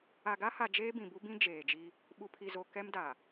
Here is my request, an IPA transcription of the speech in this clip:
a˨ ɡ a˦ h a˨ d͡ʒ eː˦ b ĩ˨ b u˦ b ĩ˦ d͡ʒ eː˨ d͡ʒ i˦ | ɓ u˨ pʰ i˨ z o˨ k ɛ˦ m d a˨

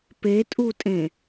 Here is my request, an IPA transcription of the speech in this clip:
p e tʼ u tʼ ẽ

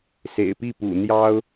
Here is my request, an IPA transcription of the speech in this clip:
s ḛ˨˩ ɪ̯ p i˥˩ p ṵ˨˩ n̪ j ɑ˥ ʊ̯

